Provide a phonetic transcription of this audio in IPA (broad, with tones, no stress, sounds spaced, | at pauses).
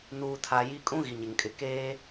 n uː˨ tʰ a˨ j i˨ kʼ ũ˦ ɣ i˨ ɲ ɪ˨ ŋ kʼ ɪ˨ k eː˦